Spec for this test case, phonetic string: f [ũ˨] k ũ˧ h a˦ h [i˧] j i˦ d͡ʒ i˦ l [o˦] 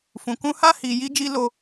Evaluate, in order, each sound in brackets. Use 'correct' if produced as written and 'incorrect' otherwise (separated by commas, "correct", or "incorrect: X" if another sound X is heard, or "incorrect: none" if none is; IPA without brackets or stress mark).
correct, correct, correct